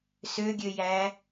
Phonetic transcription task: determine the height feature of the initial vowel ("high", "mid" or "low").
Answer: mid